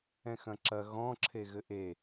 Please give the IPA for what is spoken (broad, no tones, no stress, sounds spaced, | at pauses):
ɛ̃ x ɐ̃ ǁ ɐ ɣ ɔ̃ ǁʰ e ɣ ɘ ʔ e